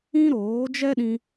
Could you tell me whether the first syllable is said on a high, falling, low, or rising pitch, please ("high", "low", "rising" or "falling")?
high